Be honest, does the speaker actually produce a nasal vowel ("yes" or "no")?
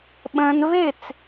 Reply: yes